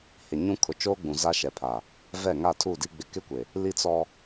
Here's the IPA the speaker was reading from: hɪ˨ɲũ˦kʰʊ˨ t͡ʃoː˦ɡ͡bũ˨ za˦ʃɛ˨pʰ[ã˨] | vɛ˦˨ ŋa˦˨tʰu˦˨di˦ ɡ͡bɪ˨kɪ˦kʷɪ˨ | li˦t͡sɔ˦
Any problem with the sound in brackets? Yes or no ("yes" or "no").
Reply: yes